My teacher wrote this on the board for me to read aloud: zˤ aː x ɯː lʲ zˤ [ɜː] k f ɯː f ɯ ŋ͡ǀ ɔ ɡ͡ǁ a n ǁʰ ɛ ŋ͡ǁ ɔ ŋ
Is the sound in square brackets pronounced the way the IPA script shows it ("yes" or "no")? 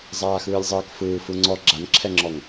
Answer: yes